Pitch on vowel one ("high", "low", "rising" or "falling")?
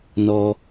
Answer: low